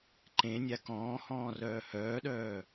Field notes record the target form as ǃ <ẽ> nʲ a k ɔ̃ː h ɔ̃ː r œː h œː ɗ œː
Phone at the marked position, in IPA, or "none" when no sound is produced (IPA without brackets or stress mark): ẽ